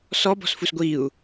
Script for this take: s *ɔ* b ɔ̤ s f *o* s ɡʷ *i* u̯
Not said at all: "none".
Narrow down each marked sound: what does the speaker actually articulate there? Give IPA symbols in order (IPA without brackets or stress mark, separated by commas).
ɔ, u, i